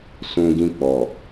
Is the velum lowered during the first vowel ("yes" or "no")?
yes